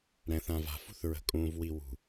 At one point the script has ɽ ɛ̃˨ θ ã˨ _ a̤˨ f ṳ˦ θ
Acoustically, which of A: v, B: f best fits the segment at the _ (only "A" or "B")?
A